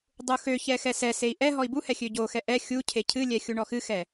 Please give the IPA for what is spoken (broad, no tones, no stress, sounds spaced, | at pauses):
dˤ u x ø ç ɛ x ɛ s ɛ s e i̯ ʔ ɛ ɦ ɔ i̯ b u h ɛ xʲ ø ɟ o x ɛ ʔ ɛ xʲ u cʰ e cʰ ɨ lʲ ɛ xʲ u ɳ ɔ x ɨ x ɛ